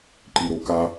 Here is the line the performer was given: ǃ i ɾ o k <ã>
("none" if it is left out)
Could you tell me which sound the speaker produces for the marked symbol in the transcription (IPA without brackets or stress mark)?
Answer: a